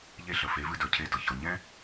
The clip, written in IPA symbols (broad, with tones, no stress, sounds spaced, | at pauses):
ʎ e˥˩ ɬ ə˩ f e˩˥ v ɨ˧ d ə˞˩ cʰ e˧ d ɤ˩ ç ɤ˩ ɲ ɛ̃˥